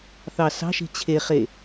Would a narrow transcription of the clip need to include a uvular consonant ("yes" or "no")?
yes